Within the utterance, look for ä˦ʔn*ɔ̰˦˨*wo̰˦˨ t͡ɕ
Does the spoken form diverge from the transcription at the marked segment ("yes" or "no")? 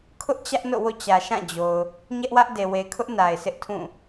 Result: yes